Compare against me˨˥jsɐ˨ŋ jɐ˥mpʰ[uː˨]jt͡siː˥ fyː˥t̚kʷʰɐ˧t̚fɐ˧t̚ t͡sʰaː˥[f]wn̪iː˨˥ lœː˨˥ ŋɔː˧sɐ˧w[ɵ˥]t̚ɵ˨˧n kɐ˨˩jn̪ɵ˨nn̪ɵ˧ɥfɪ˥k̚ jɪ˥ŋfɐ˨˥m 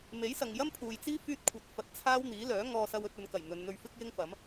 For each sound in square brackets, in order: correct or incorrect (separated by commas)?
correct, incorrect, incorrect